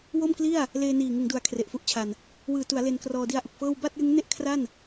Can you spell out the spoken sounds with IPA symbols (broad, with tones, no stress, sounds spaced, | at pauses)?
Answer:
w o˥˩ m k l i˥˩ a̯ | l eː˧ n iː˨˩ ŋ ɯ˩˦ ŋ d u˩˦ a̯ kʰ r e˨˩ ʔ f u˦˥ ʔ t͡ɕʰ a˨˩ n | w ɯː˨˩ t u˩˦ a̯ l e˧ n k r ɔː˧ d i˦˥ a̯ ʔ u˨˩ k̚ f ɤː˥˩ w b a˥˩ t̚ j ɯ˦˥ ŋ n e˥˩ ʔ kʰ r a˥˩ n